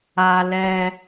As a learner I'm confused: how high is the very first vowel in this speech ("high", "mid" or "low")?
low